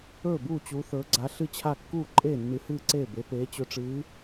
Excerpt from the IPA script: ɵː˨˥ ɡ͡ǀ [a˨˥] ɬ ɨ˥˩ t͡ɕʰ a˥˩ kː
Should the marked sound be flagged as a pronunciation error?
no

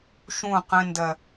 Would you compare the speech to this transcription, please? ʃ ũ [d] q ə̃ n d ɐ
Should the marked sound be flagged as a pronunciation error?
yes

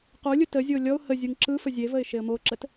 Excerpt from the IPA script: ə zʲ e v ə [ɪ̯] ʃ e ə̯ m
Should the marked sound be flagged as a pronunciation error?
no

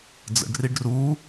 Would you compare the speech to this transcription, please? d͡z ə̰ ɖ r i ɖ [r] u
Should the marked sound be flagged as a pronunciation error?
no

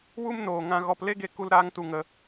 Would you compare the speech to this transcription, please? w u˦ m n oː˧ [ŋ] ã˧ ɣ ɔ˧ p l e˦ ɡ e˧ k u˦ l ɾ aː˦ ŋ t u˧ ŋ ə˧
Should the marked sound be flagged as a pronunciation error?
no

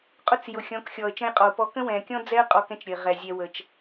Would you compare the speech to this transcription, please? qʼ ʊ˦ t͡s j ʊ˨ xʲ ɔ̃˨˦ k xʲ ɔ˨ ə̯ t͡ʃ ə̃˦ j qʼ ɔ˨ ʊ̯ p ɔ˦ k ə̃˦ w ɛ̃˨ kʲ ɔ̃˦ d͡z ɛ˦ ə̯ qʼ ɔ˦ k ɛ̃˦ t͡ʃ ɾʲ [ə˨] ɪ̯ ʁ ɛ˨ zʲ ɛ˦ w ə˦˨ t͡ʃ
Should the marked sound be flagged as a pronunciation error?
no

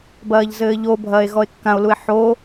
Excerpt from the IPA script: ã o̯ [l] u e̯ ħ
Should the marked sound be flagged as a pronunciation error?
no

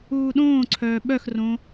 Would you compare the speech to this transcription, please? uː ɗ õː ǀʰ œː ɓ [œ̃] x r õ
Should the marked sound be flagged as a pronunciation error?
yes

